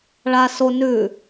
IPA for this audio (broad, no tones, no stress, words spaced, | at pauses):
ɭa so nʉ